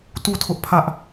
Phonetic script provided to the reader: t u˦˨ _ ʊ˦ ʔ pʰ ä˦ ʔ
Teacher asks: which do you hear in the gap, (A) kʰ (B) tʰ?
B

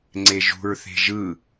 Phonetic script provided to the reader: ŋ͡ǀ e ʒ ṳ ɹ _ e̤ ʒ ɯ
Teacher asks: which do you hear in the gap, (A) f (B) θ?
B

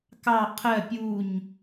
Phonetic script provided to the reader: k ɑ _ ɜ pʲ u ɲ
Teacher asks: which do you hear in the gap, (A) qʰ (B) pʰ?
A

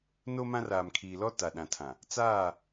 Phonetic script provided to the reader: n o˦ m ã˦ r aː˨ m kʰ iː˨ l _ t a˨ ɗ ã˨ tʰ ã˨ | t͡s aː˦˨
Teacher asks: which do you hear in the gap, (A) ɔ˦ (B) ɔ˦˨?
A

